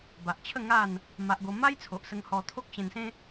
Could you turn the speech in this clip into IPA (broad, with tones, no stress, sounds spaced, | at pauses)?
b a˨ ʔ t͡ɕʰ ə˥˧ ŋ a˥˧ n | m a˦ ʔ ɡ o˦ m a˦ j t͡sʰ o˨ ʔ s ə˧ ŋ h ɔ˧ t̪ʰ o˦ k̚ ɕ ẽ˧ n s ẽ˦